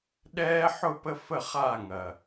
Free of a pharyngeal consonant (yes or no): no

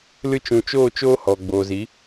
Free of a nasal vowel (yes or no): no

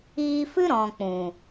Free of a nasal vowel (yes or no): no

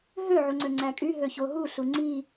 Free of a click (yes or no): no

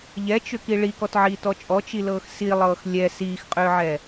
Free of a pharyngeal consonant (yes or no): no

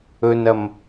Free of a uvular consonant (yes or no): yes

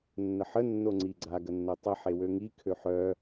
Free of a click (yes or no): no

